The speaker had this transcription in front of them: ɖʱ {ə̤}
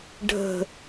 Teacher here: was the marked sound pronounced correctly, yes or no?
yes